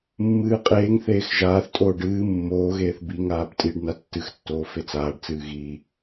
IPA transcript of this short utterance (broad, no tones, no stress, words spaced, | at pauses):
mːɨːqʼeːŋθeːx ʒaːθtʼoːɖ ɨː mːoːɣeːθ biŋaːb tʼiɖ natːɨxtːoː fet͡saːɖt͡sɨː ɣi